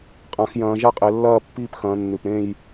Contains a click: no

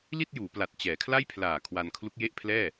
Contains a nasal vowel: no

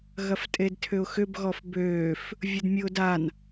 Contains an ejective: yes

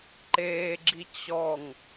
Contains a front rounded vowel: no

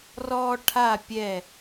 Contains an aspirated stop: yes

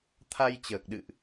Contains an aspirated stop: yes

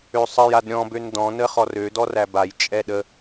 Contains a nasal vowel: yes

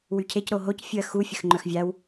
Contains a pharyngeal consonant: no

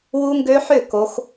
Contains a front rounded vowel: yes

